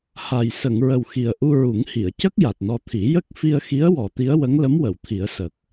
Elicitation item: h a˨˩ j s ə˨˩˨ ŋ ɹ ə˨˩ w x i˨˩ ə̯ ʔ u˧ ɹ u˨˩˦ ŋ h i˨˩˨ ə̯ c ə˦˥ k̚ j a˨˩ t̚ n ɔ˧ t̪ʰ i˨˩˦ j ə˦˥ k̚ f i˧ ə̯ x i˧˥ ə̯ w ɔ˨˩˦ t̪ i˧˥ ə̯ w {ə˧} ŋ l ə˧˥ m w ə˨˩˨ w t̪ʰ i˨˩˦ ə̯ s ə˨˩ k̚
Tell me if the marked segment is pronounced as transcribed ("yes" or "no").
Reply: no